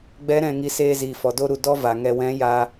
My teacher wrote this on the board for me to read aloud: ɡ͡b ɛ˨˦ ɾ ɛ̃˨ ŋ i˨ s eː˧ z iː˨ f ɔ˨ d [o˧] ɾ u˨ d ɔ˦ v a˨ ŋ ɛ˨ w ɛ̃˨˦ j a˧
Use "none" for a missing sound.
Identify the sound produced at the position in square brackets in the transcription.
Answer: o˧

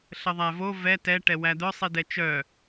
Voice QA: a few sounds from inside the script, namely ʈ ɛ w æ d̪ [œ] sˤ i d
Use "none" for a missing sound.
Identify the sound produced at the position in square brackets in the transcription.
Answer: œ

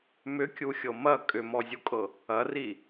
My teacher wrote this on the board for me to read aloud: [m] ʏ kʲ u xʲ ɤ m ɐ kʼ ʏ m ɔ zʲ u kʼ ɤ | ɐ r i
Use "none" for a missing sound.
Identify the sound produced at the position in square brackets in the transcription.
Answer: m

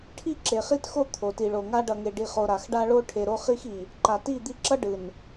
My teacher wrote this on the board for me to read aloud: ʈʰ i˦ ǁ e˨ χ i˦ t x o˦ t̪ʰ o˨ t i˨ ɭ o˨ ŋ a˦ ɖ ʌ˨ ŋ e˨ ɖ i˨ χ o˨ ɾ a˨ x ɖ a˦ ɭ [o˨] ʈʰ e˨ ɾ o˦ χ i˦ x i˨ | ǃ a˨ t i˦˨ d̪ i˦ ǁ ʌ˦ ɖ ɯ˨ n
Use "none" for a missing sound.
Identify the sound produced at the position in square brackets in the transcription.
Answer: o˦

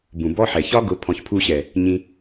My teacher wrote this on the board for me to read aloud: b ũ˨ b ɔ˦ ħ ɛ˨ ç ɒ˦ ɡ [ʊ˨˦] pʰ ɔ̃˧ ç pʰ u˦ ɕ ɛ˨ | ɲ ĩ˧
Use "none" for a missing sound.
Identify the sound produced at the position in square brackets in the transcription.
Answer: ʊ˨˦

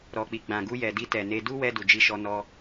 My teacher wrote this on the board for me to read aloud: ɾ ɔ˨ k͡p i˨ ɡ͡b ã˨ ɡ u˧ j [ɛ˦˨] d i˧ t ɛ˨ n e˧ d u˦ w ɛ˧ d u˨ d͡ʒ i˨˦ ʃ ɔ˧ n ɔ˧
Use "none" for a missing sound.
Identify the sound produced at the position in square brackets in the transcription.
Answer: ɛ˨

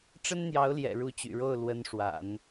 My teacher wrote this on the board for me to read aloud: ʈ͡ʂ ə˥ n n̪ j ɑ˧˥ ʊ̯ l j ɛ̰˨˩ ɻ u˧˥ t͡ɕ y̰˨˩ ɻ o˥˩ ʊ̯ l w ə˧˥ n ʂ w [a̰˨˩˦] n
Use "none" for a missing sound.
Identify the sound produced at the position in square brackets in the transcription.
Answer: a̰˨˩˦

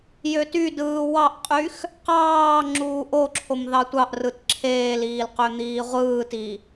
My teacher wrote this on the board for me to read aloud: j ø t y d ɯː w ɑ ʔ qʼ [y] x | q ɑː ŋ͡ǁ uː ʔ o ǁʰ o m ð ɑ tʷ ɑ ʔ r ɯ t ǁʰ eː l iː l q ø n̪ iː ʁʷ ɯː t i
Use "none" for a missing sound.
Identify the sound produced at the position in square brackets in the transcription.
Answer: y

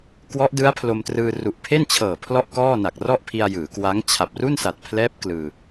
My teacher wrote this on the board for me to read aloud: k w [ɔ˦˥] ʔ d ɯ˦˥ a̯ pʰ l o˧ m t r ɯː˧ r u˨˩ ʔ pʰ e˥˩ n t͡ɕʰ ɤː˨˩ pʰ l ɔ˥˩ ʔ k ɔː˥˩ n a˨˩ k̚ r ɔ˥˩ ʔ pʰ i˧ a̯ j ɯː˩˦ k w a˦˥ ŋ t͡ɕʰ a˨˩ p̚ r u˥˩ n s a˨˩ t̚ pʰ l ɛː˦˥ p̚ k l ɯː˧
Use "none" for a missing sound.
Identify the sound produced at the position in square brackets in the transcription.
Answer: ɔ˦˥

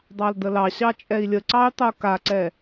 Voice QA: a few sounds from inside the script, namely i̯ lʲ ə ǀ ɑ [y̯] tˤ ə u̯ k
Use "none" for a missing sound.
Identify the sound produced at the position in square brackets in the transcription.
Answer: y̯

